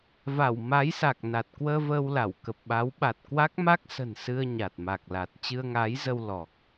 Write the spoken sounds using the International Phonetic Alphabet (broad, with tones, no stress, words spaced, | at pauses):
va˧˩w ma˨˦jsa˨˩k̚ na˨˩t̚ kwəː˧vəː˧w la˧˩w kə˨˩p̚ɓa˨˦w ɓa˨˩t̚kwa˦˥k̚ma˦˥k̚sə̤˨˩n sɨ˧ə̯ ɲa˨˩t̚ma˨˩k̚la˨˩t̚ t͡ɕɨ˧ə̯ŋaː˨˦jzə˧w lɔ˨˩k̚